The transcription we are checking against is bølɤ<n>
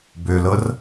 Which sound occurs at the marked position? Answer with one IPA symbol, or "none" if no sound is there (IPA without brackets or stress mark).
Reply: r